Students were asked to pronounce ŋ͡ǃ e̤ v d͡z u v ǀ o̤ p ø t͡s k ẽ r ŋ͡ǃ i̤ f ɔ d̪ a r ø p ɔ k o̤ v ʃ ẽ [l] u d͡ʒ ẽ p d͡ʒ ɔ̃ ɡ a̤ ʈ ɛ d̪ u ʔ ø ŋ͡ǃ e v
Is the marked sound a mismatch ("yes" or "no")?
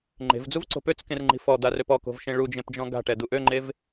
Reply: yes